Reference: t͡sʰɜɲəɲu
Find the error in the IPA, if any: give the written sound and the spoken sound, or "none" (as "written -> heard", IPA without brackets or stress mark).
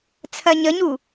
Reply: none